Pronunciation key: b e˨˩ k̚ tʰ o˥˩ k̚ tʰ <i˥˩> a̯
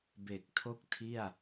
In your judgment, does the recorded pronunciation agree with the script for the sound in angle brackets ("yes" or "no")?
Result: yes